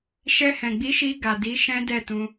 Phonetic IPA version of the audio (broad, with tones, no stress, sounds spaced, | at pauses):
ʃ ɛ˧ h ɛ̃˨ ɡ͡b i˨˦ ʃ i˧ ɡ a˨ d i˨˦ ʃ ɛ̃˦ d ɛ˦˨ t ũ˧